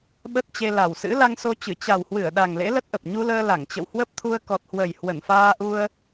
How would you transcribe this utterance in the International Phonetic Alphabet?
ɓə˦˥t̚t͡ɕe˧ la˨˩wsɨ̰˧˥ la˧ŋso˧t͡ɕɨ˧˩ t͡ɕa˨˩whwɨ˧˩ə̯ɗa˨˩ŋ lḛ˧˥lə˦˥t̚ʔə˨˩p̚ ɲu˧ləː˧ la˧˩ŋt͡ɕə̰˧˨whwə˦˥p̚t̪ʰu˧ə̯ kɔ˨˩t̚hwə˨˩j hwə˧˩nfaː˧ʔu˧ə̯

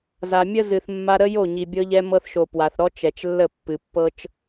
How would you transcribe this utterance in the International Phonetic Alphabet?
za˨mʲə˦zɨ˨θ mːa˧ɾə˦jo˦˨ ɲi˨bʲɤ˧ʎɛ˧ mɤ˧θʃo˨ pwa˨θɾɔ˦ t͡ʃɛ˨t͡ʃlːə˦˨ pːɨ˨pːɤ˦t͡ʃ

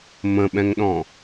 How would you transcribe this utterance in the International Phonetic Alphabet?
mə̃ɓɛ̃ŋɗɔ̃

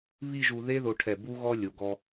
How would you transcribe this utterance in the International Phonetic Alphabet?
βi˥˧ʒu˧ ðe˥ðo˧ʈʰɛ˧˩ bu˥ɣɔ˥ lʲo˩˧ɡɔ˧

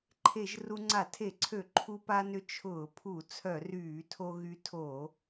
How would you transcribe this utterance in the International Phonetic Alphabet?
ǃʰe˧˩˧ʒ ru˧ŋ͡ǀa˧˩˧tʰe˧˩˧ǀʰø˧˩˧ ǃʰu˧pa˧nʏ˧ t͡ʃʰʊː˧˩˧pʰu˧˩˧ t͡sʰœ˧˩˧ryː˧˩˧tʰo˧ ɣy˧tʰo˧˩˧

